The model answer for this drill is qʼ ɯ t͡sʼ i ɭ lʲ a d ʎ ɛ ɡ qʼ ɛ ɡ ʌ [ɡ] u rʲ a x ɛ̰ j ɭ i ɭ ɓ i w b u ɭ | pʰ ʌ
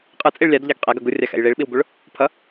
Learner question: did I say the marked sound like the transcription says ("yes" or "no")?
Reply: yes